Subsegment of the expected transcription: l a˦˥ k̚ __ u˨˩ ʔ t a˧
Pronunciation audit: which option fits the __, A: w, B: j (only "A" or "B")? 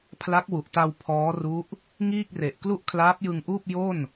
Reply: A